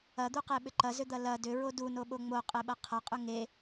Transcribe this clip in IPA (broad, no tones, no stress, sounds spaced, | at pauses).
ɐ d̪ u q e ɓ ʏ ǃ ɐ z ʏ d̪ ɐ l ɐ d ʏ ɹ o d u n o ɓ o ŋ͡m o qʼ e ɓ ɐ qʰ ɐ qʼ ʏ ŋ e